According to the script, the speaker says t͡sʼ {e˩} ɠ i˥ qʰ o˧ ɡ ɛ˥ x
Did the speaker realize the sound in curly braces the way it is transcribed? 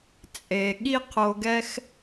yes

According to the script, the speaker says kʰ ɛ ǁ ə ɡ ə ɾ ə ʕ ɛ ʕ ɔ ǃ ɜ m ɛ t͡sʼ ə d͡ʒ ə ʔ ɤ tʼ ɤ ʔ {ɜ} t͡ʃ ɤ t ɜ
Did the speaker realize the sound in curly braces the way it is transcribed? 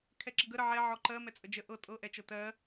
no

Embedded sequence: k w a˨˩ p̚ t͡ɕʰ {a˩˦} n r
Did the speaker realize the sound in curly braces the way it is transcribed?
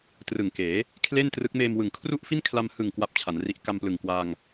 yes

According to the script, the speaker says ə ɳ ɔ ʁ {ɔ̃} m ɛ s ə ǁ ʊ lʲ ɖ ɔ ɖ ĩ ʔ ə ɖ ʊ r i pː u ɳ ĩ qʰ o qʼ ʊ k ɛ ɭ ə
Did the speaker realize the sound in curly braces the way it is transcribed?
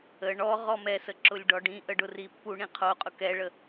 no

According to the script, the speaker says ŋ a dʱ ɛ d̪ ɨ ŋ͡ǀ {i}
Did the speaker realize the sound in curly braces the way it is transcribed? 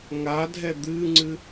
no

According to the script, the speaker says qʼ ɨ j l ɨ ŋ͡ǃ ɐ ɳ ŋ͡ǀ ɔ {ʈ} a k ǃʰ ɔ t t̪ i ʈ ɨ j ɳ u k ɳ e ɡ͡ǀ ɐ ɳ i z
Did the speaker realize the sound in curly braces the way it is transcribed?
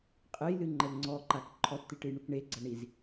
no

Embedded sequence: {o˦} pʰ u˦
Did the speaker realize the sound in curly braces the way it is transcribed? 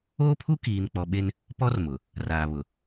no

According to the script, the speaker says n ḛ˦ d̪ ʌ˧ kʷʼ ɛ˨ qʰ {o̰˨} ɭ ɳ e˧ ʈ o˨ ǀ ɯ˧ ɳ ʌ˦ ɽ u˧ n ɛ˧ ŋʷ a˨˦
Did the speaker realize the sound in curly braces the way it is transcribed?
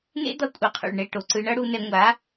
no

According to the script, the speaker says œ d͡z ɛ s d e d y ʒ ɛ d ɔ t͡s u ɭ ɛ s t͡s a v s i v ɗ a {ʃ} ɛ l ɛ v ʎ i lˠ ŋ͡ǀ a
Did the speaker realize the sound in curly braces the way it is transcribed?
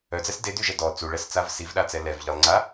no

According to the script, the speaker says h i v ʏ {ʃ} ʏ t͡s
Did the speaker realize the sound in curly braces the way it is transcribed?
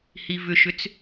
yes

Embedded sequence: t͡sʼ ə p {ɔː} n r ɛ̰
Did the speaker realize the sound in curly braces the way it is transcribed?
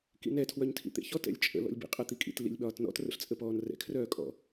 yes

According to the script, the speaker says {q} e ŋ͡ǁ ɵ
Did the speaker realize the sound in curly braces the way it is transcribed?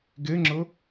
no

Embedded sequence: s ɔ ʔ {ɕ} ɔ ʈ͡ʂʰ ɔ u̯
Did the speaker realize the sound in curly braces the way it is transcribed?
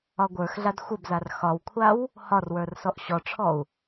yes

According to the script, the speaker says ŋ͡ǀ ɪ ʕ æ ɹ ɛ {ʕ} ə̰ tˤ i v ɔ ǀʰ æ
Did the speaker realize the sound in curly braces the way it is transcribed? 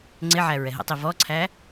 no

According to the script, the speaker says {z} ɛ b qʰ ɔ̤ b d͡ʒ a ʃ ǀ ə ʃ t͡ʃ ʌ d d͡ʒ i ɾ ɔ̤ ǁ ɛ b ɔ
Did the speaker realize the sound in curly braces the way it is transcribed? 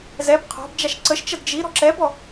yes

